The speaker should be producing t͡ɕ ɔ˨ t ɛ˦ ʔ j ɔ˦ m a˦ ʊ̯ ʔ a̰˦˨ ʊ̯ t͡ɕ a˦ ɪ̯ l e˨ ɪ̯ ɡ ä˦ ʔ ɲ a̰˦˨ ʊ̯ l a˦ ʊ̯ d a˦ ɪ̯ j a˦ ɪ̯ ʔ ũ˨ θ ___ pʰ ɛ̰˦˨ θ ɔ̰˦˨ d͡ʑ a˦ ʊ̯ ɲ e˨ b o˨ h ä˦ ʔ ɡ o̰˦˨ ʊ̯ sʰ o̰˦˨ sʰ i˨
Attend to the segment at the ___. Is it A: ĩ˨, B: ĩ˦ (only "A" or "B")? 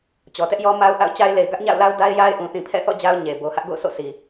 A